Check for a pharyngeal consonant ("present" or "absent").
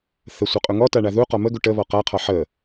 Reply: present